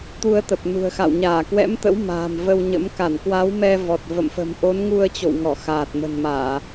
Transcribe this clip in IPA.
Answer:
t̪u˧ə̯t̪ə˨˩p̚nṳ˨˩ə̯xa̰˧˨w ɲaː˧˩kwɛ̰˧˥mt̪ə̰˧˥w ma̤ː˨˩mvə˧wɲə̰˧˥m ka˧˩nkwa˨˦w mɛ˧vɔ˨˩t̚və̰˧˨mfə̤˨˩m ʔo˨˦nŋu˧ə̯t͡ɕo̰˧˨wŋɔ˧˩ xaː˨˩t̚mə̤˨˩nmaː˧˩˨

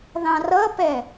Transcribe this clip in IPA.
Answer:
ðɑ̃rʌpɛ

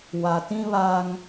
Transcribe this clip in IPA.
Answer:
wa˨tĩ˦βa˦ŋ

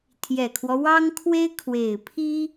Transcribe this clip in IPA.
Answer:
t̪ʰjɛ˨˩kʰwɔ˦wɑ˥ŋ kʰwe˥ɪ̯ kʰwe˨˩ɪ̯pʰi˥

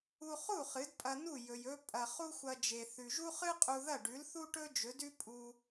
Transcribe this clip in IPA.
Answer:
u˧χu˥˩ χɨ˩˥dpʼɐ˧nu˥˩ jɵ˩j ɵ˧ pʼɐ˩ χu˥xʷɐ˧ d͡ʒe˩θʉ˩ʒu˥ χɨ˥qʼu˧ ðɐ˥˩ɖʉ˩˥lθu˥ʈɵ˥ d͡ʒɵ˩˥dʉ˥ pʼu˧

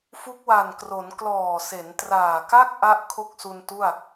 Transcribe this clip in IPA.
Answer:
fu˦˥k̚wa˨˩n kro˩˦n klɔː˨˩se˩˦ntraː˨˩ka˥˩k̚ ʔa˥˩ʔ kʰo˥˩k̚su˧ntu˥˩a̯

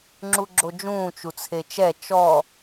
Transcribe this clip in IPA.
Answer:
ŋ͡ǁuɡ͡ǁod͡ʒũː t͡ʃut͡sʰet͡ʃɛ t͡ʃɔ

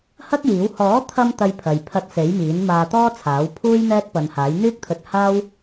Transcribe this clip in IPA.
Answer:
hɐ˥k̚jiː˨˥w hɔː˨˥t̪ʰɐ˧m t̪ɐ˧jpʰɐ˨j pʰɐ˧t̚se˨˥jmiː˨˥n maː˧t̪ɔː˥t͡sʰaː˨˥wpʰuː˥j n̪ɛː˥t̚pɐ˨˧nhaː˨˥j n̪yː˥k̚t̪ʰɵ˧t̚haː˥w

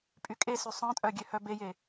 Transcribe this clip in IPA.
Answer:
pʼykʼesy sˤœ̃tʼœ ɡʲøhœbeje

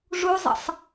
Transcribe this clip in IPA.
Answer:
ʐuzˤə̰sˤ

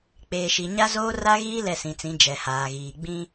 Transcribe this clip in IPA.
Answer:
k͡peː˨ʃi˨ ɲa˦zoː˦ ra˦ɣiː˦ lɛ˦˨sĩ˨t͡sĩ˨˦ d͡ʒɛ˨haː˨ɣiː˨ ɡ͡bĩ˦

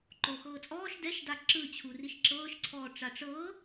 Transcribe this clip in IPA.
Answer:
ǃoxɤːt͡sʼɔːʃ dɛʃda ǁɯt͡ɕʰu riʃǁɤːʃǀʰɔː ʈ͡ʂaʈ͡ʂɤː

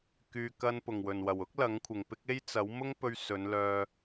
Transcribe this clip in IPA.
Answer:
kyː˨kɐ˧n pʊ˨˩ŋwɵ˨˩nwɐ˨˩w ʊ˥k̚ lɐ˨˥ŋkʷʰɪ˨˩ŋpɪ˥k̚ e˥jt͡sɐ˨˥w mʊ˥ŋpɵ˧ɥ sɵ˨˧nlœː˧

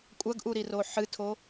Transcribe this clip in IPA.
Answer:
kʷʼɐɡʔuɾiro ħɨtʰo

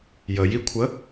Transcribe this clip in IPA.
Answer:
jəjikʷʰə

